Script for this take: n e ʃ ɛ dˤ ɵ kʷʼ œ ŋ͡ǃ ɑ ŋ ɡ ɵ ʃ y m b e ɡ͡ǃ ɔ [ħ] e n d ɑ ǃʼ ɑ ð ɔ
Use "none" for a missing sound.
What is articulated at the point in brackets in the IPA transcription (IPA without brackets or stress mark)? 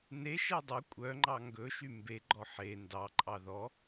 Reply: ħ